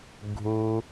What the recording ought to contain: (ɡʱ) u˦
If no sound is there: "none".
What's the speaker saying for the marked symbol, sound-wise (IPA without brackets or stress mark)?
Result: ɡʱ